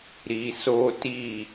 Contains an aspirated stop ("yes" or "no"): no